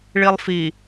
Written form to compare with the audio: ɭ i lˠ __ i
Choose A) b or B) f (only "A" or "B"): B